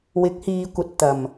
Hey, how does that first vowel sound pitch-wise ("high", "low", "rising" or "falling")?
rising